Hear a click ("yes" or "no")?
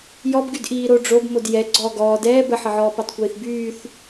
yes